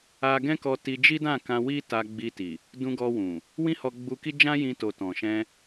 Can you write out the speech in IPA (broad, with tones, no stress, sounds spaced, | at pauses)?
a˧ ɡ ɛ̃˦ k ɔ˧ t i˧ d͡ʒ i˦ d ã˦˨ k ã˧ w i˦ t a˧ ɡ͡b i˧ t i˨ | d ũ˧ ɡ ɔ˧ w ũ˨ | w ĩ˦ h ɔ˧ ɡ͡b u˧ k i˦ d͡ʒ ã˦ j ĩ˧ t o˨ t ɔ̃˨ ʃ ɛ̃˧